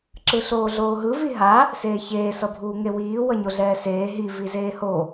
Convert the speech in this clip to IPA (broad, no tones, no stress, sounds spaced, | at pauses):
ǁ ɯ ɬ oː ɮ oː ɦ ɯ v i ɦ a | s eː ç eː s ʌ bʱ uː ŋ e w iː w ʌ ɲ o ɮ ɛː s eː ɦ i v i z eː h o